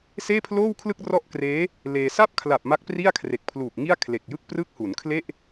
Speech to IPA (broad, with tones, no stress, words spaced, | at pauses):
seː˥˩pʰloː˥˩wkʰlɯ˥˩k̚ rɔ˥˩ʔkreː˦˥ | leː˧ sa˥˩p̚kʰla˨˩p̚ ma˦˥k̚pri˥˩a̯kʰre˨˩k̚pʰluː˨˩k̚ ŋi˥˩a̯kʰle˨˩k̚jɯ˥˩k̚ prɯ˦˥k̚hu˩˦nkʰle˥˩ʔ